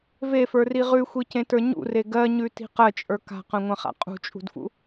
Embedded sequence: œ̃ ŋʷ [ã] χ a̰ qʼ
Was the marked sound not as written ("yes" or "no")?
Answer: no